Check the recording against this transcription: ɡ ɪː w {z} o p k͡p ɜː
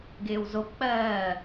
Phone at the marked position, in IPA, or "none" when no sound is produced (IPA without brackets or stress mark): z